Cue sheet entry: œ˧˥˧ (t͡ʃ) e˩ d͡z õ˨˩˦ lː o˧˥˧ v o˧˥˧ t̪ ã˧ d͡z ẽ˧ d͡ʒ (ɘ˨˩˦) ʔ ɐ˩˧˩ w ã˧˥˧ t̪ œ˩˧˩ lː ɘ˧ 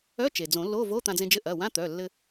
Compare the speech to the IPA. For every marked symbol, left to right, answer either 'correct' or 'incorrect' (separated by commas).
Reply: correct, incorrect